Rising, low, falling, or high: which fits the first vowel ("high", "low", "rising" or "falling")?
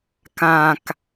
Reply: low